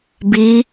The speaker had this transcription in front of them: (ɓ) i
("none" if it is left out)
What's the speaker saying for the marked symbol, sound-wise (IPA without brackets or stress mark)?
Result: b